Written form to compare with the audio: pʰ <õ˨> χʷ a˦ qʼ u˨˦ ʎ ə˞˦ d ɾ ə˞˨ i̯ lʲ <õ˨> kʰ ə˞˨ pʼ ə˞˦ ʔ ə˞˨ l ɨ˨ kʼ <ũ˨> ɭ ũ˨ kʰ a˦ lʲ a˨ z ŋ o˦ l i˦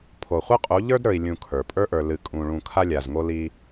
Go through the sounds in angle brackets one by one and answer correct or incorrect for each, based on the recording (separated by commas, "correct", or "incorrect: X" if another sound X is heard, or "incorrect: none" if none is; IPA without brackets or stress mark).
incorrect: o˨, incorrect: ũ˨, correct